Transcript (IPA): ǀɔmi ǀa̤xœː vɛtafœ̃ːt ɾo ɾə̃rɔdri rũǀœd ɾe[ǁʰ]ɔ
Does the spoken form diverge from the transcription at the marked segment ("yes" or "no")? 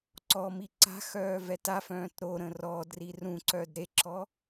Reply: no